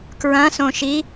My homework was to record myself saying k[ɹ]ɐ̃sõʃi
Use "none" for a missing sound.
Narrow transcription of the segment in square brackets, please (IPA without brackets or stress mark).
ɹ